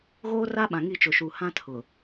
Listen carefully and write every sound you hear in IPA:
ɣoː˦ra˦ɓã˨ŋi˦˨ t͡ʃʊ˨ʃu˨ hã˦tʰʊ˨

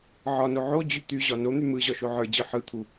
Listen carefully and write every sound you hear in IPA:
ʕɒno ʕod͡ʑy t̪yʑɒ non̪y mɯʑɒʃo ʕə˞d͡ʑɯ ħɯt̪ʰu

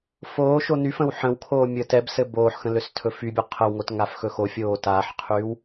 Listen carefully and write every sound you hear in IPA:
foːʃo nyfə̃w ħə̃wkʰoː mʲəːtɛbsɘ boːħxə̃ løstʰɵfybʲu qʰəwŋot ŋafxɵxofʲoː taːħqʰyːw

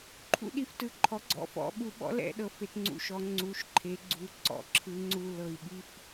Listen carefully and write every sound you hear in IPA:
ǃʰṵ˦ɗi˨˩ftɯ˨˩ ǃʰɔ˩˥ɡ͡ǀɔ̰˩˥fɔ̰˩˧ ɓu˩˧ɓɔ̰˩˥ lɛ̰˩˧ ɗɤ˩˧fe˩˧tŋ͡ǀṵ˨˩ʃɔ˩˧ ŋ͡ǀu˩˧ʃ ǃʰe˩˧ɡ͡ǀu˩˧ ǀɔ̰˩˥ǁʰɯ˩˧ŋ͡ǀu˨˩ lɤ˨˩i̯ɓi˦f

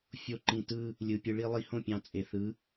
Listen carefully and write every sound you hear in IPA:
fʲo˦ǃĩ˧ tɯ˧ | lʲɯ˨ pʲɯ˧ɭi˦lˠi˧ hõ˦˨pʲɑ̃˨ t͡sʼe˨θɯ˨˦

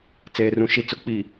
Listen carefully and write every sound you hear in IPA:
t͡seː˨rũ˨ ʃi˨t͡sʊ˨˦k͡pi˨

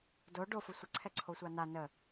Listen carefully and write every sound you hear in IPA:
do ɖofə sʷəǀʰɛǀʰosʷa na nə

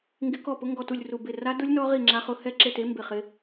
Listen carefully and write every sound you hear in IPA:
ŋɡɪ˦˥kɔ˥˨pʊ˦˥ ŋɡɔ˥˨tu˥˨lʲ ru˥˨ bɪ˥˨ ra˦˥dʊ˦˥lʲ nɔ˦˥ʁi˥˨ ŋ͡ǁa˦˥ χʊ˦˥ hɛ˥˨ǁe˥˨te˦˥ mbɪ˥˨χɪ˦˥

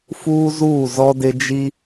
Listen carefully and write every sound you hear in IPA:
fuː˦zuː˦˨zɔ˦dɪ˦ d͡ʒi˦

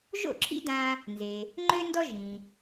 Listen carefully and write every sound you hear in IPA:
ʒo̰˥˩ǁʰḭ˥dã˧ | nze˩ | ŋ͡ǃø˥ndɔ˥ ʒĩ˩

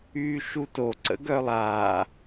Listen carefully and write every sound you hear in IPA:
yːʃuto ǀə̰ɡœlˠa

